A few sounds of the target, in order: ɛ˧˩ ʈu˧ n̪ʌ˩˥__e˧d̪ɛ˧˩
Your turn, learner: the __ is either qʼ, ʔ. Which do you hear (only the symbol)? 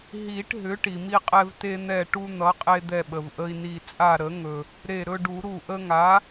qʼ